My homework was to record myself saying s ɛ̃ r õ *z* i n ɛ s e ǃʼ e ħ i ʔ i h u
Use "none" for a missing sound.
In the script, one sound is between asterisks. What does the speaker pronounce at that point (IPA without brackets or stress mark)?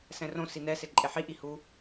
s